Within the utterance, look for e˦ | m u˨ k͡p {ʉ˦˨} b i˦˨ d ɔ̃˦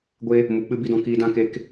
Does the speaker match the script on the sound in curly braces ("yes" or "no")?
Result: no